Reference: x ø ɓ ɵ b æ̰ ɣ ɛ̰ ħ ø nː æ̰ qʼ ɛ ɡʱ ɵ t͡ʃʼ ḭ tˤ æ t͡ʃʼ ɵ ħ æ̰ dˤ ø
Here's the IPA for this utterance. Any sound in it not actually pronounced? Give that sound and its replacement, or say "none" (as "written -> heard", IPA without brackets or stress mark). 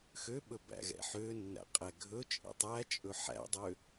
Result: none